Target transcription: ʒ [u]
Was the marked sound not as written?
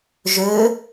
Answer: yes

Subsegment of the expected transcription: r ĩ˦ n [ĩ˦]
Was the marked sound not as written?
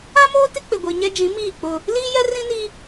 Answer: yes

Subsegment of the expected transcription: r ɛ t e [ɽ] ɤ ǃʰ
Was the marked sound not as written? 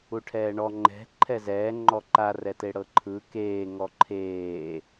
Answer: no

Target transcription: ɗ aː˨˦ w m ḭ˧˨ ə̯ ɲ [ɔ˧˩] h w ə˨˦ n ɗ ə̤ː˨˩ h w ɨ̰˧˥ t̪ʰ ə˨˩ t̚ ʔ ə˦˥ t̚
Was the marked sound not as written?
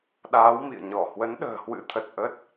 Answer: no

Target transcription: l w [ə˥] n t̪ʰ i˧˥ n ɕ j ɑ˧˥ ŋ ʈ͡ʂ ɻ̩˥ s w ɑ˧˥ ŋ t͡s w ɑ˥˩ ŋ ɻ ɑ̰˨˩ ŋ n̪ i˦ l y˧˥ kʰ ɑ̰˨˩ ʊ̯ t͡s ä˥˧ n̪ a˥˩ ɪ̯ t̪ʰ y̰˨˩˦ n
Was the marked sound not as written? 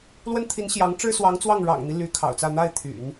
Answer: no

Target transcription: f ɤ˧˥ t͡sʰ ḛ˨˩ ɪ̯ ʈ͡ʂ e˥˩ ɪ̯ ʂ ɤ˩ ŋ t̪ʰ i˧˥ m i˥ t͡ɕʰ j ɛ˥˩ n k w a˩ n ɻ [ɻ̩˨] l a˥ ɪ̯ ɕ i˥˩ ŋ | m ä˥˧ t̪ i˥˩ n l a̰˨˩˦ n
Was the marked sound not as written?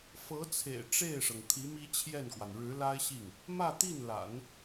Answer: yes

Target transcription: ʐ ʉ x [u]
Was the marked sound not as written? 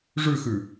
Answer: yes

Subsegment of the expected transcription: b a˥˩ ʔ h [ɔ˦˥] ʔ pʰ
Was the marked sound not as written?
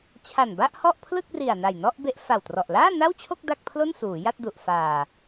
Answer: yes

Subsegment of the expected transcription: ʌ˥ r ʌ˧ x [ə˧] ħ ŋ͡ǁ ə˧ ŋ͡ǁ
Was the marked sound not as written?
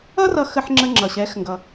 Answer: no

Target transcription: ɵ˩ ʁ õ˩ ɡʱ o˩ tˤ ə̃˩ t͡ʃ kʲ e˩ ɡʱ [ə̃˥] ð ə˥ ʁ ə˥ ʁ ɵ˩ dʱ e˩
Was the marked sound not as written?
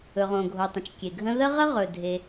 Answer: no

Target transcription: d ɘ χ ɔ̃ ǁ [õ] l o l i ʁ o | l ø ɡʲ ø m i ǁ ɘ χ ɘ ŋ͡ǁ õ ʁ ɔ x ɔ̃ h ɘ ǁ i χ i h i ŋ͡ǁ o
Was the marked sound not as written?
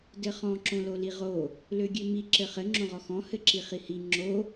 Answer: no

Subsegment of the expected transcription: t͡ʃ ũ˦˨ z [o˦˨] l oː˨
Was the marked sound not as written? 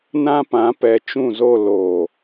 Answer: no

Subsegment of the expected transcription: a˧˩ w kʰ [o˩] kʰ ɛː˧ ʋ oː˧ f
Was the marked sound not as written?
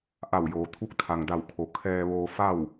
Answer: no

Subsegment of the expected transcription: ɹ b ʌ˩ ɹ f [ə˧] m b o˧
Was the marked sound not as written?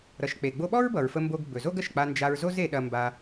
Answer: no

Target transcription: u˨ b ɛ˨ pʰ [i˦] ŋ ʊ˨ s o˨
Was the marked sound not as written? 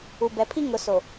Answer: no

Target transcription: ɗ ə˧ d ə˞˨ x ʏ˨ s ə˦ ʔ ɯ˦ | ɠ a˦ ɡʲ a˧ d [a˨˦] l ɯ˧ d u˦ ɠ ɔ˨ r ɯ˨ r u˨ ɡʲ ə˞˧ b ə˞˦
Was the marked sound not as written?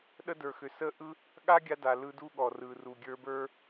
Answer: yes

